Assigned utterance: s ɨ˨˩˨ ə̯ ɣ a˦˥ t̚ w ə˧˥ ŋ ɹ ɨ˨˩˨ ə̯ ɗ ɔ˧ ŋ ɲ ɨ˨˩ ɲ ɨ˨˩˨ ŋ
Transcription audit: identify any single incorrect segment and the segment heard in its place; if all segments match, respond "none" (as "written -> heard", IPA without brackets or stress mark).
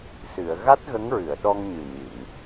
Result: w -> ɣ